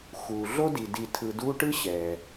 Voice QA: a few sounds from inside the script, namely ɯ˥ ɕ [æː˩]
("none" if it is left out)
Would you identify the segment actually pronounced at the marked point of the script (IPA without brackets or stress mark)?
ɛː˩